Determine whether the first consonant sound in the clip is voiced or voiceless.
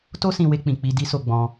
voiceless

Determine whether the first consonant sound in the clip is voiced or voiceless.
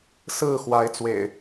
voiceless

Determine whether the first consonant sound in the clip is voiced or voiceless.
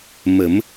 voiced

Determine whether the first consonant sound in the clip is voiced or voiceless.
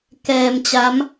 voiceless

